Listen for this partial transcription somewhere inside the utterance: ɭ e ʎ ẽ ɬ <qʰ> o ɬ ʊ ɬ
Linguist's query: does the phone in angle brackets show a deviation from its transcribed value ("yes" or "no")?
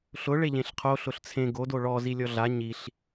no